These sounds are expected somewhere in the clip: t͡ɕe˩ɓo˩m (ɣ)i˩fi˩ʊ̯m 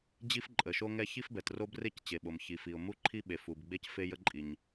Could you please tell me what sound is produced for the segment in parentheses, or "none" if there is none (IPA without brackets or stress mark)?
ç